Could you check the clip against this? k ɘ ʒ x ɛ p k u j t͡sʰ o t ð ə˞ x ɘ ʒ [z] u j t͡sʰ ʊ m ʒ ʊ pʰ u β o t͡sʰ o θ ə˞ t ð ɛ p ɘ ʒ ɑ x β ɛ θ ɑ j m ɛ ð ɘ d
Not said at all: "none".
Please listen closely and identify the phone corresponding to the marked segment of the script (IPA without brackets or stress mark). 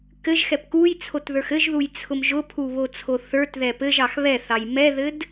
ð